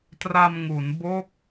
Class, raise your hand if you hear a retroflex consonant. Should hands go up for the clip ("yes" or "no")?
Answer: no